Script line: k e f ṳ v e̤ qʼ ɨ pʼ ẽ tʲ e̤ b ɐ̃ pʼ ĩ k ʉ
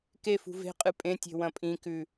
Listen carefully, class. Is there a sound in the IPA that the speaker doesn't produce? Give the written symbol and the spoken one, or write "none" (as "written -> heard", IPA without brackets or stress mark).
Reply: b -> w